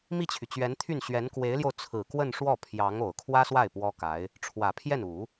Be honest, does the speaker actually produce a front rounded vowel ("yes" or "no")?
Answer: yes